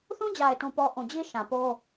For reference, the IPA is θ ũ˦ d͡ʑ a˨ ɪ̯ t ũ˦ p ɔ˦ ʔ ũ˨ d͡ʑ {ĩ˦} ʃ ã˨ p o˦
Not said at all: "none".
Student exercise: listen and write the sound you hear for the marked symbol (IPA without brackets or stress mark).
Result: i˦